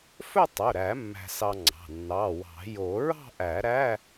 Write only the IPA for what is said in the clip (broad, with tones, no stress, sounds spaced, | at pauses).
f ɵ˥˧ tˤ ɵ˩˧˩ ɾ æ˨˩˦ mː æ̤˧ s ɑ˧ ŋ͡ǀ ɑ̤˩˧˩ nː ɑ˩˧˩ w ɑ̤˨˩˦ j o˨˩˦ ɹ ɑ̤˥˧ ʔ æ˨˩˦ ɾ æ˧˥˧